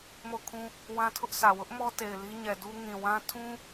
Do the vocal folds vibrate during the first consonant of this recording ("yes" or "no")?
yes